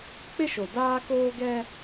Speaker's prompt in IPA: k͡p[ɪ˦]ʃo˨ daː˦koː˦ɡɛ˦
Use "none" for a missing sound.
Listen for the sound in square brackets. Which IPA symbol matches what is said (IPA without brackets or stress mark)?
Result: ɪ˦